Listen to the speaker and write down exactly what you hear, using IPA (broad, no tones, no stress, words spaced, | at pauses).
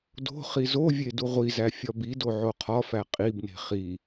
do̤ χizovʲe duʁʷizæ fʲɒbido ʕoqʰɒfæ qʼibne̤ χi